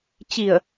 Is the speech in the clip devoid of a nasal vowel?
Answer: yes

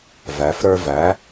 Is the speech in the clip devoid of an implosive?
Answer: yes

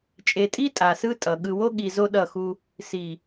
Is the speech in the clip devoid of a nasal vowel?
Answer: yes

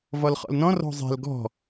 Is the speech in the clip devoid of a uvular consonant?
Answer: no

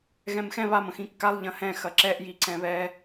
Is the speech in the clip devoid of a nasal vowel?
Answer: no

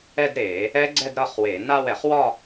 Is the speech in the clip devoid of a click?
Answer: no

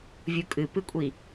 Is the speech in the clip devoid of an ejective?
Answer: no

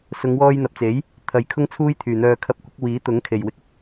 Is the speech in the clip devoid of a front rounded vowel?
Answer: no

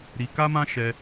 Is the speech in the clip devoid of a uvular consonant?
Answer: yes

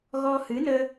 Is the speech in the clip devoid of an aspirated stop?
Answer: yes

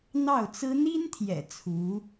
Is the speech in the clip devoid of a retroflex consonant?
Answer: yes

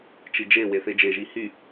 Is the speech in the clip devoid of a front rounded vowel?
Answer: no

